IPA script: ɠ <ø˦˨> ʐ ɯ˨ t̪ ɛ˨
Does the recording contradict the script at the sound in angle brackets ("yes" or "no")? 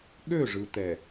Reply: no